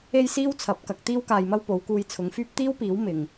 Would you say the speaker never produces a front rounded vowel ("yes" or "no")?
no